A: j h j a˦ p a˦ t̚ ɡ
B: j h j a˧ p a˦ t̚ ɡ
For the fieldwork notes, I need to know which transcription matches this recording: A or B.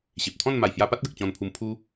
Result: B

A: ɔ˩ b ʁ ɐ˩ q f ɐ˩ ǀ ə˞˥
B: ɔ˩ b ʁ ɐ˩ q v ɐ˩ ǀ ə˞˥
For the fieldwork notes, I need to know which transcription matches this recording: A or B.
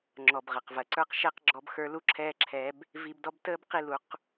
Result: B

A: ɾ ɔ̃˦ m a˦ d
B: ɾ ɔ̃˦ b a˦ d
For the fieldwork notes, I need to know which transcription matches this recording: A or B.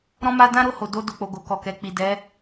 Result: A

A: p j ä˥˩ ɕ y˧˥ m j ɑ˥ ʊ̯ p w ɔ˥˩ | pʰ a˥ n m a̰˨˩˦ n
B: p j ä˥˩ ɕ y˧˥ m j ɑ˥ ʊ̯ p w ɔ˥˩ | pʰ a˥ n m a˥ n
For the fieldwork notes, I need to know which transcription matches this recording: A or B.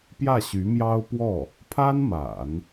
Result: A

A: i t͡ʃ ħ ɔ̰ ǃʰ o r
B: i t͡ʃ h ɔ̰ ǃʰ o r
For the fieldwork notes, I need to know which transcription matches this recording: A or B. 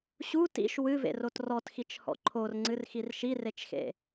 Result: B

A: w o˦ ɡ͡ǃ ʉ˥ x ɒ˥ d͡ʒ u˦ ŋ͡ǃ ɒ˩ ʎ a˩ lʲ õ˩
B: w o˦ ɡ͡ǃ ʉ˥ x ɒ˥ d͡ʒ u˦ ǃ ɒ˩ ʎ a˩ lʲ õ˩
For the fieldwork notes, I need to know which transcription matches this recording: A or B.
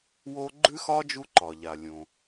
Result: B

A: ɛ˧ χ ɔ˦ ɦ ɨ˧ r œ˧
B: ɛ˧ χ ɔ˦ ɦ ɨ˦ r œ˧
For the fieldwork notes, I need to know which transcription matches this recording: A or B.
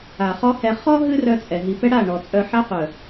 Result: B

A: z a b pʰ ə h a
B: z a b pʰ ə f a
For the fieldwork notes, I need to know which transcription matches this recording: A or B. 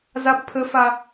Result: B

